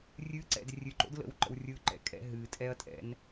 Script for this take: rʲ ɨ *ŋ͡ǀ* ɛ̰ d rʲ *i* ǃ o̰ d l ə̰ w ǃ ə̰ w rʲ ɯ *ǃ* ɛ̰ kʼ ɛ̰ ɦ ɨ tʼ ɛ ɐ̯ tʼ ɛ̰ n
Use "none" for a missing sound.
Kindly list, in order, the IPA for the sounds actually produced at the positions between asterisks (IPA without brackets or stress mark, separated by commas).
ǀ, ɨ, ǃ